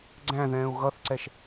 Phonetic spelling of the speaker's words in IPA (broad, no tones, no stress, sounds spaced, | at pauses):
ɡ͡ǀ æ̃ ð ɛ̃ː u̯ ɣ ʌ θ ǀ ɛ ʃ